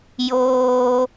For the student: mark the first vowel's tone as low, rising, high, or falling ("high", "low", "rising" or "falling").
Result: low